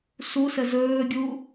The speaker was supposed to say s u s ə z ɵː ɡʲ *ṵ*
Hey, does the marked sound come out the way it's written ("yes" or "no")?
no